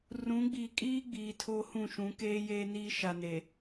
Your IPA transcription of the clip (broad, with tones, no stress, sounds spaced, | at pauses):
r ũ˨˦ ɡ͡b iː˨ kʼ iː˦ ɡ͡b iː˨ tʰ o˦ h ũ˦˨ ʃ ũ˨˦ k eː˦ j eː˦ n iː˦ ʃ a˨ n e˨